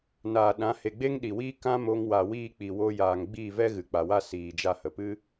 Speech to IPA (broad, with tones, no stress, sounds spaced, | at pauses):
n aː˨ ɗ ã˨˦ h e˨ ɡ͡b e˦ ŋ ɗ i˨ w iː˦ k ã˦ m o˧ ŋ w a˨ w iː˦˨ k͡p i˨ w o˧ j aː˨ ŋ ɡ͡b iː˦˨ v ɛ˦ ɣ ɨ˨ k͡p a˨ w a˦ s iː˨ d͡ʒ a˧ h ə˨ p ɨ˦